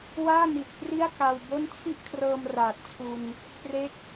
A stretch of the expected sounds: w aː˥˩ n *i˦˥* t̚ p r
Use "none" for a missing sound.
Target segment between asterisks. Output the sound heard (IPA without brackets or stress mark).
i˨˩